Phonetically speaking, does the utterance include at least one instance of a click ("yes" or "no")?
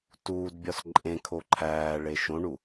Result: yes